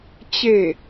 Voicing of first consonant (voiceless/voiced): voiceless